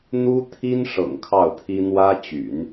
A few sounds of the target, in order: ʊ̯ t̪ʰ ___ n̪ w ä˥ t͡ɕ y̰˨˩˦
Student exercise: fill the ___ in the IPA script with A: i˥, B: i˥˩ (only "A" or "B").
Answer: A